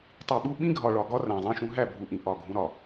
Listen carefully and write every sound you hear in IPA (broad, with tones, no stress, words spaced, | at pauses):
tˤi˨ɓu˦ ɓĩ˦ɡʱɒ˨ɭɒ˨ɡɒ˦ ræ̃˨zˤĩ˦ʃũ˦ ɦæ˦˨bʱu˨ʔĩ˨ ʔɒ˦˨ɡʱũ˦ɾɒ˨